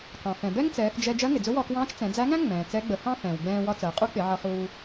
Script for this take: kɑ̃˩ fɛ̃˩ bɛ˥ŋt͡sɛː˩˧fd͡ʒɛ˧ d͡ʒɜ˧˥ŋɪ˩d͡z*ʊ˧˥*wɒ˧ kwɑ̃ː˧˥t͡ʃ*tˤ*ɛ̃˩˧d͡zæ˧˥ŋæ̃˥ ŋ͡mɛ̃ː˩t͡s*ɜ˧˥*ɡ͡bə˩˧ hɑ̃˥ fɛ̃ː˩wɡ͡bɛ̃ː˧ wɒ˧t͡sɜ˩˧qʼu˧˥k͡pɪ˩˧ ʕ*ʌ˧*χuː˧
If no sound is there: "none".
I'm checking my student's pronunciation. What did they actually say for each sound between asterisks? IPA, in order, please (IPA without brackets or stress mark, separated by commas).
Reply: ʊ˧˥, t͡s, ɛ˧˥, ʌ˧